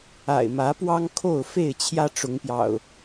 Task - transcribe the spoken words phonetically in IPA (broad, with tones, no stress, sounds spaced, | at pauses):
a̰˨˩ ɪ̯ m ä˨˦ p w ɑ˦ ŋ kʰ o˥˨ ʊ̯ f e˥˨ ɪ̯ t͡ɕʰ j ä˦ ʈ͡ʂ ʊ˨˦ ŋ p j ɑ̰˨˩ ʊ̯